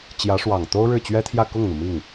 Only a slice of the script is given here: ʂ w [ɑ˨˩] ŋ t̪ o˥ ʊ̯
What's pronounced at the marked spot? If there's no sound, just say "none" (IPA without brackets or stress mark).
ɑ˨˩